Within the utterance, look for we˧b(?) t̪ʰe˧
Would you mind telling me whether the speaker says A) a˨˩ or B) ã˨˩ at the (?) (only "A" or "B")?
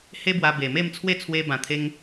B